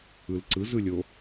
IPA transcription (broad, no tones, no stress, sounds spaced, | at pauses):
ɯ l ǀ ɯ z ɯ lʲ o